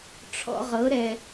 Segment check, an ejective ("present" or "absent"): absent